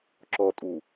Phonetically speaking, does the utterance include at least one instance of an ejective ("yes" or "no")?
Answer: yes